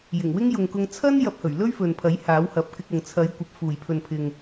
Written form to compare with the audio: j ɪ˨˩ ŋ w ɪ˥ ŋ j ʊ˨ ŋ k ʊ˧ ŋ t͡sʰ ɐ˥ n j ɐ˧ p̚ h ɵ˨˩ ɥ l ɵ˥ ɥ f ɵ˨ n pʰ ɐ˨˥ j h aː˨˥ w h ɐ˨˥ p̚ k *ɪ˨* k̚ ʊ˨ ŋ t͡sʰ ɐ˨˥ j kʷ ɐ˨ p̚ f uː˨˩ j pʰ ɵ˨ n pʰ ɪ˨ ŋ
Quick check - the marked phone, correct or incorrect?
incorrect